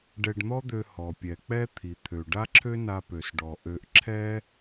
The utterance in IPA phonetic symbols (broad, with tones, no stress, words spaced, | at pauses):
ɖɛ˧ɖn̪ɔ˥d̪ø˧ hɔ˩ pʲɛ˩k͡pɛ˥ t̪ʰi˩t̪ʰø˩ ɖa˥ǁʰø˥na˧pø˩s ɖɔ˩ʔø˧ʔ ǁʰɛ˥